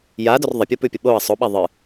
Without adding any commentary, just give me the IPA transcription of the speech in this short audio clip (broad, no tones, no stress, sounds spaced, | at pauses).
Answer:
j a d ɵ r ðˤ ɐ pʲ u p ʉ pʲ ɐ ɓ o ɐ̯ sˤ o ɓ a ðˤ ɨ